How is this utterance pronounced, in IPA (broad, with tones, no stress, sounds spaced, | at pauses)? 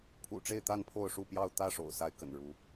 pʰ ṵ˨˩ ʈ͡ʂ e˥˨ ɪ̯ t̪ a˥˨ n pʰ o˥˨ ʊ̯ ʂ u˥˨ p j ɑ˥˨ ʊ̯ t̪ ä˥˨ ʂ o̰˨˩ ʊ̯ s a˨˦ ɪ̯ k ə̰˨˩ n ɻ u˨˦